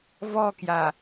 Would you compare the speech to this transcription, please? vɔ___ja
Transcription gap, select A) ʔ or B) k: B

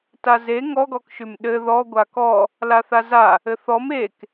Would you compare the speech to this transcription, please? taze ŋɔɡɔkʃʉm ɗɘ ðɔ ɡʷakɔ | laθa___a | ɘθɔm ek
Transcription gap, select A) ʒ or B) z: B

